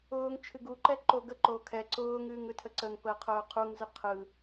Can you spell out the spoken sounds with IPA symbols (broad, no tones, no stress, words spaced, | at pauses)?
ʊːŋ t͡ʃʰɨɡuǃɛ ǃoɡəǃoː kʰɛ ǀʊːŋɨːŋ ɯtʰəǀəŋpəː qʰʊːqʰuŋzɨ qʰɯ